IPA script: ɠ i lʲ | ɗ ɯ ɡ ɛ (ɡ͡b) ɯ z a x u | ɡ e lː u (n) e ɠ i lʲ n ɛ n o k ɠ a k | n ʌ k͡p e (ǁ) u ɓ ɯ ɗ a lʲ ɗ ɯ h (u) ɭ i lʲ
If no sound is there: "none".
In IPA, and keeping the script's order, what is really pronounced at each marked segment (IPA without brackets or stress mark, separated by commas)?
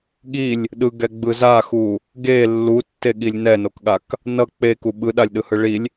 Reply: ɡ͡b, tː, k, ɯ